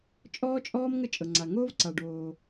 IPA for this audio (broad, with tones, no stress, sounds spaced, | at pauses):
t͡ʃʼ ɔː˥ t͡ʃʼ ɔː˥ m ŋ ə˥ t͡ʃʼ ɤ˩ ŋ͡ǀ a˩ ŋ oː˥ v ǀ a˩ ɖ oː˩